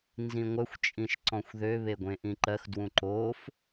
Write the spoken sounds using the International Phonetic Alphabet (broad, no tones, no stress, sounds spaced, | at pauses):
n z ĩ ŋʷ œ xʷ t͡ʃʼ ĩ ʃ ǀ ɔ̃ xʷ ð ø β e ɡʷ ẽ ʔ ĩ ǃ ɜ x d w ũ ǃ oː f